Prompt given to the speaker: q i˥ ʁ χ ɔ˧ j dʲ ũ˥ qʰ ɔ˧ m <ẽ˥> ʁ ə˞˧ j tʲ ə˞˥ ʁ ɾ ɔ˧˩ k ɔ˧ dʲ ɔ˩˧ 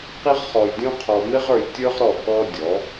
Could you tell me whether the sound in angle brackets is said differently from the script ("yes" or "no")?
yes